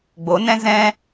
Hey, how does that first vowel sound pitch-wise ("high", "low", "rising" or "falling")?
rising